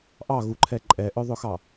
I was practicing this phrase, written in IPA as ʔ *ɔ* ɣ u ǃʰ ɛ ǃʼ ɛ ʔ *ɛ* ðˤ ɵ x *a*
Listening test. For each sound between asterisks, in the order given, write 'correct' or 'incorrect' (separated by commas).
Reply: incorrect, incorrect, incorrect